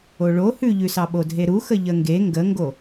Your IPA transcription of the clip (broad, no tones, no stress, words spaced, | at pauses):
oɭo hʉʎʉsɑ ɓodʱeɾuxə ʎəŋɡe ŋɡəŋɡo